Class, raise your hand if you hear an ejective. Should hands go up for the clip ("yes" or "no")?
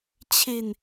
no